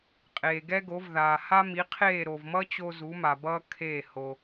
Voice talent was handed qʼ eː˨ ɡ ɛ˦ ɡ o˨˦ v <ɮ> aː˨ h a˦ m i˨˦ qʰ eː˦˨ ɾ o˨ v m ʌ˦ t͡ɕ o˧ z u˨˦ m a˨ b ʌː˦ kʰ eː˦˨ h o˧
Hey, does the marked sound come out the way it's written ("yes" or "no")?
no